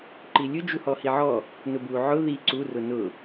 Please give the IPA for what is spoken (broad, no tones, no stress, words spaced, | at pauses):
ǃilʲʊ d͡ʒuhɔhiʕɔ | nʊbu ʕʊ ði ǀu rʊnʊ